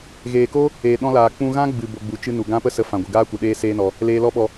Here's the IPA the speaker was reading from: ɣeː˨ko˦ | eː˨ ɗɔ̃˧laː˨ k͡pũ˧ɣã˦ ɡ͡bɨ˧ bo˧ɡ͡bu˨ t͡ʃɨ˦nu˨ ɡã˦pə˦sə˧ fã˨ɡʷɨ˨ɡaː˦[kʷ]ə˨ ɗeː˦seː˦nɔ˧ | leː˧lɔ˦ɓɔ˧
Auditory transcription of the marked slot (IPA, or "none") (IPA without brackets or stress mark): kʷ